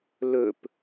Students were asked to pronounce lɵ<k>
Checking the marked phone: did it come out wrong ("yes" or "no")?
yes